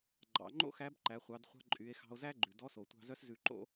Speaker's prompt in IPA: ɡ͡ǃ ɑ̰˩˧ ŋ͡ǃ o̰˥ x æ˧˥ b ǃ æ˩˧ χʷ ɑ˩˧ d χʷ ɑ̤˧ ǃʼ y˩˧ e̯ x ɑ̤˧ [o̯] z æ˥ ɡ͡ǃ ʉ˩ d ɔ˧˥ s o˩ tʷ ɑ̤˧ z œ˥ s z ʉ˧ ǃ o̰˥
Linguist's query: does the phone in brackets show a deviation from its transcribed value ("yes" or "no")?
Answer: no